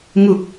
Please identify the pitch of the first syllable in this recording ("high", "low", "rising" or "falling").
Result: low